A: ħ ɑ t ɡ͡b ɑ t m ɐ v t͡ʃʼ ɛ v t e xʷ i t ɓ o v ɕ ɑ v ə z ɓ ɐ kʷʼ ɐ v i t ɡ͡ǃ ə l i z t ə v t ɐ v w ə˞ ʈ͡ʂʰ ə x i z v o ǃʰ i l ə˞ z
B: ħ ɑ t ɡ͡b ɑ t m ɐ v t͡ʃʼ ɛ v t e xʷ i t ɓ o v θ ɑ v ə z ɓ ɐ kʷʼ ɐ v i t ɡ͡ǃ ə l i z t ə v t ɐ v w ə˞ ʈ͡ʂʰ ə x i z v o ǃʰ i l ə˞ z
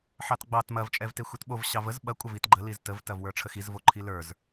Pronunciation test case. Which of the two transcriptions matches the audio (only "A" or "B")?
A